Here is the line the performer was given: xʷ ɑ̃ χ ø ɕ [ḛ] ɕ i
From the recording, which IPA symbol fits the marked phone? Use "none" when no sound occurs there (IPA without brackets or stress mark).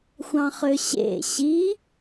ḛ